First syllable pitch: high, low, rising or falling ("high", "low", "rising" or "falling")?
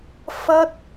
high